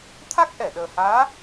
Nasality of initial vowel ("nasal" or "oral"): oral